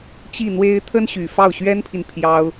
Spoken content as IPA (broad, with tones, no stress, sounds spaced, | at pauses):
t͡ɕ i˥˩ n̪ w e˥ ɪ̯ t̪ʰ ə˥ n ɕ y˨˩ f ɑ˥˩ ʊ̯ ɕ ɥ ɛ˥ n pʰ i˨ n pʰ j ɑ˥ ʊ̯